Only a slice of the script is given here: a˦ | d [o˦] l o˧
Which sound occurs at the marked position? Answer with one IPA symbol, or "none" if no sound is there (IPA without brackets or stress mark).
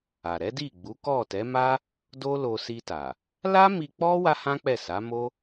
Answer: o˦